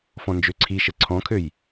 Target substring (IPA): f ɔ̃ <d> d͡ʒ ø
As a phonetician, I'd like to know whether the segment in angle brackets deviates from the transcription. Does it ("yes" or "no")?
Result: yes